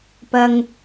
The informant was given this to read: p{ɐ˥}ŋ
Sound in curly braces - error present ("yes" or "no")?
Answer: no